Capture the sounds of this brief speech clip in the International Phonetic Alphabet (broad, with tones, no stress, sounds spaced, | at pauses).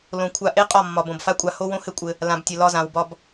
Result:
l õ˨ kʷʰ a˧ ʔ e˦ qʼ ɒ˦˨ mː ɒ˨ b õ˨ b f a˦ kʷʼ a˧ h o˦ w õ˦ h ɘ˦ kʷʼ ɘ˧ | l ã˧ b tʲ ɘ˧ l ɒ˧ z ã˨ w b ɒ˦ b